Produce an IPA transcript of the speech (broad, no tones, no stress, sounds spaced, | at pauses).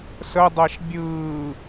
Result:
s ə dˤ ɛ ʃ bʲ ɯː